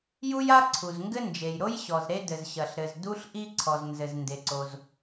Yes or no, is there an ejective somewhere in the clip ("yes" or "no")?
no